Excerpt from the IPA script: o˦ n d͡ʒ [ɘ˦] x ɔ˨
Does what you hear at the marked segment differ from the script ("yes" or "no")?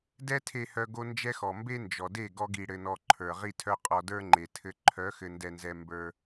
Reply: yes